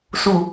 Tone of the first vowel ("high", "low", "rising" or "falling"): low